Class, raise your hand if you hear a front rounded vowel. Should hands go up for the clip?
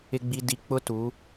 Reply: no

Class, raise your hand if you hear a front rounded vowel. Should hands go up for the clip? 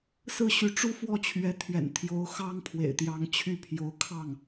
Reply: yes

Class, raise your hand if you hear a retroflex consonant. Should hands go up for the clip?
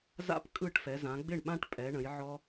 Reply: yes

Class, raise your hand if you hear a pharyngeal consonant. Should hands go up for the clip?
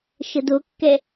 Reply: no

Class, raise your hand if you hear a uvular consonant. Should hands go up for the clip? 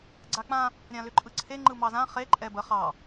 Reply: yes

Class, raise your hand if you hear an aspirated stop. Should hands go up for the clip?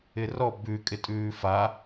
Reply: no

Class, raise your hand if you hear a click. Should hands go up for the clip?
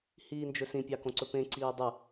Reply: yes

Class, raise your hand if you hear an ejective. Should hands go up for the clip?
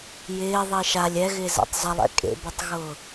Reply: yes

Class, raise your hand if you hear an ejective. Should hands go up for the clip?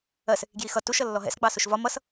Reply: no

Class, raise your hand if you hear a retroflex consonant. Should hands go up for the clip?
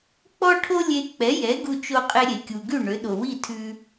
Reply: yes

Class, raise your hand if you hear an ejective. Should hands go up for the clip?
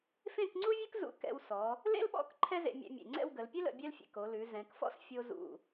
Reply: no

